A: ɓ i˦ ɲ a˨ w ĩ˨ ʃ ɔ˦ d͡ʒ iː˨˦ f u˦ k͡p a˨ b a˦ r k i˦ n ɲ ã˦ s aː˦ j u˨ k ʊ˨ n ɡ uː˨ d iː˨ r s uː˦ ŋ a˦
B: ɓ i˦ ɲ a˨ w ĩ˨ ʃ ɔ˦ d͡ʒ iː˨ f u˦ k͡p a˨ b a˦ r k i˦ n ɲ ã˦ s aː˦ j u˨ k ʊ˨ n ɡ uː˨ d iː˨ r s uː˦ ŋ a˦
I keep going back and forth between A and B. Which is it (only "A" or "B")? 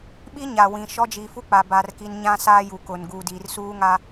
B